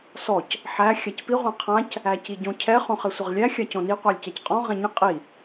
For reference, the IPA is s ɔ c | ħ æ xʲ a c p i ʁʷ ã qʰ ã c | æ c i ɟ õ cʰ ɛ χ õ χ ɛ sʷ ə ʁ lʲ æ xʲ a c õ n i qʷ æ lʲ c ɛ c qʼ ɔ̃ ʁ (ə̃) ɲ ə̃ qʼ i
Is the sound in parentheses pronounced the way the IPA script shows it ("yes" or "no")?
no